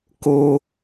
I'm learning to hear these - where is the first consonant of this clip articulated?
velum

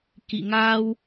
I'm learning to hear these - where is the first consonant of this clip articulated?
velum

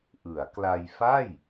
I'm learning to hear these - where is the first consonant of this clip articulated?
throat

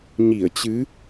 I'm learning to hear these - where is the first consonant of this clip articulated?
palate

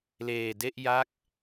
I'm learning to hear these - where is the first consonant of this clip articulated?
tongue tip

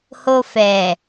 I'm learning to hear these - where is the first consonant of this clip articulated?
throat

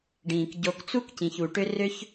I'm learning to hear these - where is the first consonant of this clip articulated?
retroflex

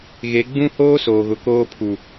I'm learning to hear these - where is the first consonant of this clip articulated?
velum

